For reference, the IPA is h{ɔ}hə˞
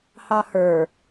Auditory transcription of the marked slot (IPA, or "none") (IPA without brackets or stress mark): ɑ